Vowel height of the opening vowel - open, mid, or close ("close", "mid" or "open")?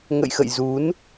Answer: mid